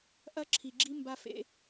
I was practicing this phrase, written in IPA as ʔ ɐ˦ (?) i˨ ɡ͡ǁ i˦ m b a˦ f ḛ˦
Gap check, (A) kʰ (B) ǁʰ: B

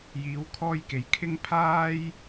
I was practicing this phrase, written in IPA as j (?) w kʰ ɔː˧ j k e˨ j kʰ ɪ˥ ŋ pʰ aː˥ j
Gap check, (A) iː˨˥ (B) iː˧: A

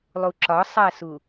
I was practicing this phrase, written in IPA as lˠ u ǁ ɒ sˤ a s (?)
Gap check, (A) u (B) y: A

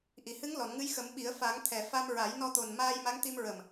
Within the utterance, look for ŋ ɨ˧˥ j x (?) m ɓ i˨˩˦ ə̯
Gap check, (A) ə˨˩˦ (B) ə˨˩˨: A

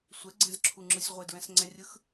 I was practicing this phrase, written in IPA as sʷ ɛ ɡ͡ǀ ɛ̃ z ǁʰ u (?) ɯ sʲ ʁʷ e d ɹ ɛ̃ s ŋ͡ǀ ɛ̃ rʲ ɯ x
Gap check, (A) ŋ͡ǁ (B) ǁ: A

